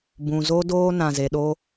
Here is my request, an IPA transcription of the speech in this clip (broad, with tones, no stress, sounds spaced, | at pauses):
b ũ˨ z o˦ d oː˦ n ã˨ z e˨ ɗ o˦